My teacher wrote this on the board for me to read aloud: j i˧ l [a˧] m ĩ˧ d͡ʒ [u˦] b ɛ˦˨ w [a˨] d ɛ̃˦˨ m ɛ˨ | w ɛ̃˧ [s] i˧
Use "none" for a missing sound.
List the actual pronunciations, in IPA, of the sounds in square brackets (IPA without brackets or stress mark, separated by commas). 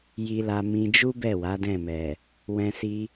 a˧, u˦, a˨˦, s